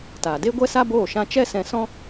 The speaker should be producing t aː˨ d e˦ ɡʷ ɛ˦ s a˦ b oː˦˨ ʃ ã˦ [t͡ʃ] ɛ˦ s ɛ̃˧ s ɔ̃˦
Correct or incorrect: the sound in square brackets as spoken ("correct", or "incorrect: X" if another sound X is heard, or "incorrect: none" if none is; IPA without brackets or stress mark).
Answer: correct